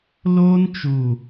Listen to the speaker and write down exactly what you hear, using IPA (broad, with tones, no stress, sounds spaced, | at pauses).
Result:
l oː˦ n t͡ʃ u˨